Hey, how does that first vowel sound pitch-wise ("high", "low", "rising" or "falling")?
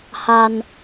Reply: high